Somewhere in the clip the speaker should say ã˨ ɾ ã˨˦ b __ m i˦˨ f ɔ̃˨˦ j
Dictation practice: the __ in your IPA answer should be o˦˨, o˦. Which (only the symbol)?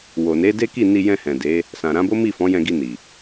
o˦